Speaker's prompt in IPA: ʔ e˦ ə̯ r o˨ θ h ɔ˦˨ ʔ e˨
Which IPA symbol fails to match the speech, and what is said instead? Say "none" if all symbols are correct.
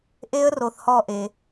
none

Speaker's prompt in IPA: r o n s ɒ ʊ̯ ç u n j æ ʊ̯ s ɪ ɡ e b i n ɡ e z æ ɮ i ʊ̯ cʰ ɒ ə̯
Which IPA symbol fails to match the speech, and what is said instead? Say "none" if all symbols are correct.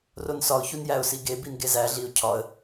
ɪ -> i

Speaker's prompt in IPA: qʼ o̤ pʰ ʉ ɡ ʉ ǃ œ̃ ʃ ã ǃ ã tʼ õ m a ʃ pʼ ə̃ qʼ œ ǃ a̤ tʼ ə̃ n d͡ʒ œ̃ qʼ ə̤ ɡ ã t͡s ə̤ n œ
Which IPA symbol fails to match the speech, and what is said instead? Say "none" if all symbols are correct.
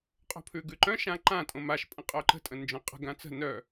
a̤ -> ə̤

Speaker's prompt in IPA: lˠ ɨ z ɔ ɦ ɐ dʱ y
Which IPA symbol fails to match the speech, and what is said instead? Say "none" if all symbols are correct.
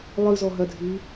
y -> ɨ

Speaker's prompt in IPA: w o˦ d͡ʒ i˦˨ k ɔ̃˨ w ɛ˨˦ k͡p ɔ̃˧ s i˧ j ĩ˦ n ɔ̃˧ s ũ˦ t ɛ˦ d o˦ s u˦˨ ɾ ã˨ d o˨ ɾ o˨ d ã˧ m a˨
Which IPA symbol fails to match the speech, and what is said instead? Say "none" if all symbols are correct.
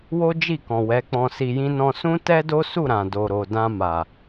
none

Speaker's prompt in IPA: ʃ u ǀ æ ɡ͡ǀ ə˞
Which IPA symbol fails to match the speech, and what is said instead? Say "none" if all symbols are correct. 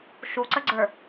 æ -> ə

